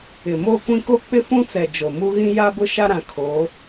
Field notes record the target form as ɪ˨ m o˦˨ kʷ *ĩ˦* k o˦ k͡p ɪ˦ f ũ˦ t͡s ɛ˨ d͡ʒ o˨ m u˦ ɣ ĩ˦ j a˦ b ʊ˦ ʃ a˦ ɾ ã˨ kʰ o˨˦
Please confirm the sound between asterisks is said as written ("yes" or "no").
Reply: yes